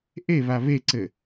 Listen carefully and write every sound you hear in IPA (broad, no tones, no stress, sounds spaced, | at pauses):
ʔ e β a β e ǀ ɘ